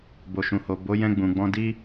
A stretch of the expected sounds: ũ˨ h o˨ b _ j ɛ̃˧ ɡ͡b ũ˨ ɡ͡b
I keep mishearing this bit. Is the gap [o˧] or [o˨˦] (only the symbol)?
o˨˦